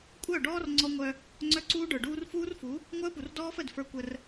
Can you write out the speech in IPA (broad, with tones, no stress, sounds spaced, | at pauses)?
kʷʼ œ˦˨ ɖ ɔː˦ r ŋ͡ǀ ɔ˦ ŋʷ œ˦ | ŋ͡ǀ œ˦ ǀ uː˦ ɖ ə˞˨ ɖ uː˦ r f uː˦ r f u˨˦ | ŋʷ œ˦ ə̯ p u˨ r d ɔː˦ f ə˦˨ d f ə˞˦ kʷ ə˦ r